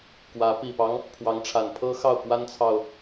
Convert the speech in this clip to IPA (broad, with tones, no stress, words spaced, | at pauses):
kwä˧˥ pi˨˩pɑ˦ŋ | pʰwɑ˧˥ŋʈ͡ʂʰa˨˩npʰɤ˥xɑ˥˩ʊ̯ kwa˥nt͡sʰɑ˨ʊ̯